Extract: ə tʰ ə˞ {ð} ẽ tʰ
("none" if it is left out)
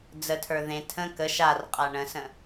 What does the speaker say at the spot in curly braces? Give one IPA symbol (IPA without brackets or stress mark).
ð